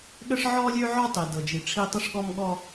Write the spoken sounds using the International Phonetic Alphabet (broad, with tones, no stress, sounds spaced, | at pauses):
ɠ ə˦ ʂ ʕ ɔ˦ lʲ ø˦ ʕ ɔ˦ tˤ i˨ d ɤ˨ d͡ʒ i˨ ʈ͡ʂʰ i˦ tˤ ə˦ ʂ ɠ ɔ˦ m ɠ ɔ˦